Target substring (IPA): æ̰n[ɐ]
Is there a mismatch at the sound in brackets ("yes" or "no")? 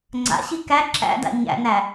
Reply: yes